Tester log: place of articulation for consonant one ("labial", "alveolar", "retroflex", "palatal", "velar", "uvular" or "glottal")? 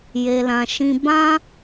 palatal